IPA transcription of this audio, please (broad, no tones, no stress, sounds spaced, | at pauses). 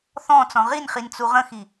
θ ɔ̃ t͡s ɔ̃ ʁ i n χ i n t͡s u ʁ ə̃ x i